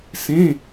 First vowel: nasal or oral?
nasal